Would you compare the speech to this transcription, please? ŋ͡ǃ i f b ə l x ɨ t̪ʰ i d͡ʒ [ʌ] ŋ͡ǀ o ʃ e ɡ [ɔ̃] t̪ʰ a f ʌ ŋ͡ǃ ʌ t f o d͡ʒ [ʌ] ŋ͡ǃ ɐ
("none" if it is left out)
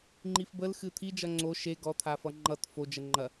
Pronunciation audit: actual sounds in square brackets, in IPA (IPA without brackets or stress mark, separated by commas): ʌ, ɔ, ə